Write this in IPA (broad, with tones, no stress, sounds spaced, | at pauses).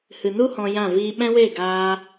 h ɨ˨ n u˦ h ɔ̃˧ j ã˦˨ v iː˦ ɓ ɛ̃˦ w e˦˨ ɡ aː˧